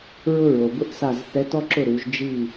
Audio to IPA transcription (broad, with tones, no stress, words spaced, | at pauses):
ɹʊ˥ɹo˨bʊ˥ʔsa˥˨z θɛ˧˥tɔ˥ǁʊ˥˨ɾu˩˥ʒ d͡ʒi˥˨